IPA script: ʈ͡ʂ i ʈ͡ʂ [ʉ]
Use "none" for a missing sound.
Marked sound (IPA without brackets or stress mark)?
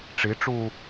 u